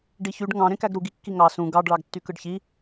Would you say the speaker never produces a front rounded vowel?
no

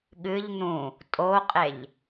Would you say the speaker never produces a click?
yes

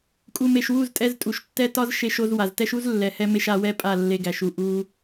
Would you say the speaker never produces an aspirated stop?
yes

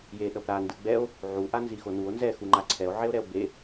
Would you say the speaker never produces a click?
no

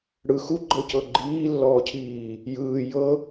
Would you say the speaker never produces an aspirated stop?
no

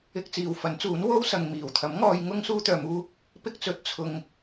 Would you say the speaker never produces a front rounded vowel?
no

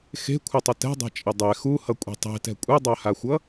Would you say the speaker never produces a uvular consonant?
yes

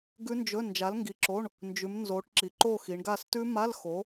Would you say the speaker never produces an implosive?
yes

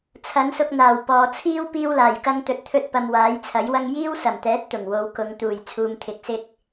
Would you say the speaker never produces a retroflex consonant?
yes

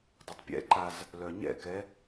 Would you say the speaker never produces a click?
no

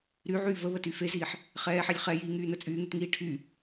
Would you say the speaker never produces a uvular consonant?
no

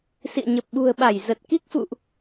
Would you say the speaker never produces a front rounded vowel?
yes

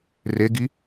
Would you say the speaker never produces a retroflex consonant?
yes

